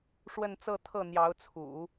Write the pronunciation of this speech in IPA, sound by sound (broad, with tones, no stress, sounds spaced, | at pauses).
ʂ w ə˥˧ n t͡s ɤ˥˧ t̪ʰ ɤ˥˩ n̪ j ɑ˧˥ ʊ̯ t͡sʰ ṵ˨˩˦